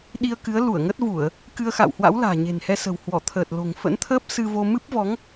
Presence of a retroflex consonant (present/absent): absent